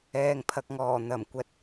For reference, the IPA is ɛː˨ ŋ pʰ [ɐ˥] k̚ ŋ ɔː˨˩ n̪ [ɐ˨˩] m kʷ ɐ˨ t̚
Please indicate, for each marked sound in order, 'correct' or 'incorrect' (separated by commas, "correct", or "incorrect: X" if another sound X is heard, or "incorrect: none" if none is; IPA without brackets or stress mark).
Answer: incorrect: ɐ˨, correct